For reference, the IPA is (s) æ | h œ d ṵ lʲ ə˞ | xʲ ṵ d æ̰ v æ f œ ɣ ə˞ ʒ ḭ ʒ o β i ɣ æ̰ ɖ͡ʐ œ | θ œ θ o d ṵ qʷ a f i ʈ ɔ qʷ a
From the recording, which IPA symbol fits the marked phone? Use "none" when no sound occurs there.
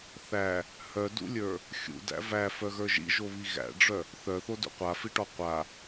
θ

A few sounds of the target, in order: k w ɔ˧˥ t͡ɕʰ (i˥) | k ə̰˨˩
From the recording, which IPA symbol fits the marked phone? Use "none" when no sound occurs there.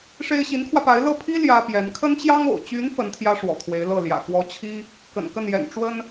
i˥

